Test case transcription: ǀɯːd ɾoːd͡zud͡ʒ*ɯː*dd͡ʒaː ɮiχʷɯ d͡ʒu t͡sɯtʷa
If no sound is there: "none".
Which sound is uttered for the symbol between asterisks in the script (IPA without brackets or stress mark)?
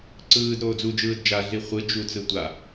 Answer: ɯː